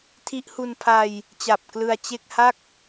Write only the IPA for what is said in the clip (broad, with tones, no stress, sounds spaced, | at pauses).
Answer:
tʰ i˦˥ ʔ h u˧ n pʰ a˧ j | t͡ɕ a˨˩ p̚ k l ɯ˧ a̯ t͡ɕ e˥˩ k̚ h a˥˩ k̚